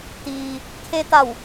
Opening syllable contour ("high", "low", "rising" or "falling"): low